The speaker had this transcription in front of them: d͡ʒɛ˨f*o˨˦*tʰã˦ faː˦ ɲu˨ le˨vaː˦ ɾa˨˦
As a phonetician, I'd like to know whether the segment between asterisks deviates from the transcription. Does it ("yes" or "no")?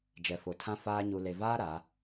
yes